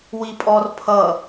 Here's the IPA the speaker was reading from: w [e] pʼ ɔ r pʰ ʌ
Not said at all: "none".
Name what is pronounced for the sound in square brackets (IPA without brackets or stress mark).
i